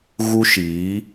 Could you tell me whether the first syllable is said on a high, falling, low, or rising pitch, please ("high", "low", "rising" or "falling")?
high